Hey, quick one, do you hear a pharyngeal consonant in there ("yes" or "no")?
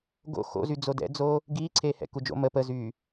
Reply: no